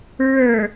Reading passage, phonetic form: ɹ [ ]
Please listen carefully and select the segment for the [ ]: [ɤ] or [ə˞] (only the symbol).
ə˞